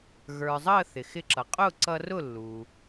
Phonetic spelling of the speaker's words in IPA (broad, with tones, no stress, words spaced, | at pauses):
ɣə˞˩zˤəː˥˩ θɪ˩xɪ˧ǁʌ˩ qʼʊː˥˩ǀʌ˧rʊ˥˩ lːu˩